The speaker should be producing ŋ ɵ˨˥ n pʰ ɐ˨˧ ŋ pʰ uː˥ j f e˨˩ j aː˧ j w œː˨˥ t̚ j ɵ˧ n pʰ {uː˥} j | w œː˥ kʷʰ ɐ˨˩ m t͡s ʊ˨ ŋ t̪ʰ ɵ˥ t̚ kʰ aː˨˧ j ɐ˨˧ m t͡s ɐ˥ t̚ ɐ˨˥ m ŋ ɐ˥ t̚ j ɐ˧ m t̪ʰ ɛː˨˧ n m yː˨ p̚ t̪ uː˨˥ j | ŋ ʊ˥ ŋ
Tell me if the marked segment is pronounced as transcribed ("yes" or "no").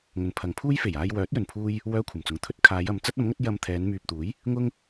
yes